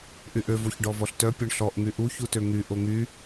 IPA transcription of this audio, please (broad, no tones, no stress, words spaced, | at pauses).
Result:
ʔyʔø voçɖɔvɔɬtœ pʲɔɳɬɔʔ ŋyʔu çutøŋy ʔoŋy